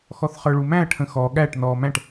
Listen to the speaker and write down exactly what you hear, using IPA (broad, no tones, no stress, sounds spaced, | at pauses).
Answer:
x ɔ θ χ ə˞ ɭ u m æ̃ ɐ̯ ʈʰ ə̃ x ɔ ɠ æ ʈ n ɔː m æ̃ ʈ